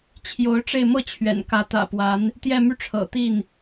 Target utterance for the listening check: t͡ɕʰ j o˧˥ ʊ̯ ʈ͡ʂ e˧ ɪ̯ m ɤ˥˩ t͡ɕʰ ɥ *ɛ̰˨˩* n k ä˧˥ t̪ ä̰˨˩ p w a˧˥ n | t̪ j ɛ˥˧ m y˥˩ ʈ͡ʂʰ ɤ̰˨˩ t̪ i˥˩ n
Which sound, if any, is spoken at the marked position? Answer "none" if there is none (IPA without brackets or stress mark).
ɛ̰˨˩